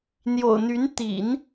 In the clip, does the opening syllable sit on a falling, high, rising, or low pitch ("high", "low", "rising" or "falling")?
low